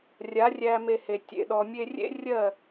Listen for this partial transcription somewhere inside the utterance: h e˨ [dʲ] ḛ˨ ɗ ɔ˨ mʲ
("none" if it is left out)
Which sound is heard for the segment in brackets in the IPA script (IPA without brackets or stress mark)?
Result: tʲ